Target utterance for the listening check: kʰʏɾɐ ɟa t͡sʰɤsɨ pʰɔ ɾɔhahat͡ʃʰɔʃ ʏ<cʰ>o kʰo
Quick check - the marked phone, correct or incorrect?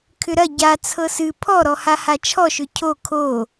correct